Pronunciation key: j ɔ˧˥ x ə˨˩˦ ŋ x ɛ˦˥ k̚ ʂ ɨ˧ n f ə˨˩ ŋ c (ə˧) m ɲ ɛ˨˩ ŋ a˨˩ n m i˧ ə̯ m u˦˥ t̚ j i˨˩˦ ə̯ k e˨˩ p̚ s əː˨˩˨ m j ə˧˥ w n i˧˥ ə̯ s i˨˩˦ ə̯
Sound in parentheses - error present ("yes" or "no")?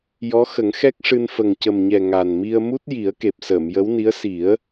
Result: yes